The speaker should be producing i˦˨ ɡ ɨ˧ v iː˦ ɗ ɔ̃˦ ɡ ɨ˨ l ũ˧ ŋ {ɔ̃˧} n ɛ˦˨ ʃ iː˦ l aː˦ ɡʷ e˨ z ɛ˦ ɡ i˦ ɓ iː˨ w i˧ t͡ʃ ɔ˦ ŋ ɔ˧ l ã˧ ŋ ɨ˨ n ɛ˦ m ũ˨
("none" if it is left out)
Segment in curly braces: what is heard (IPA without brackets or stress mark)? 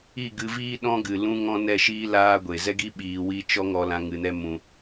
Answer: ɔ̃˦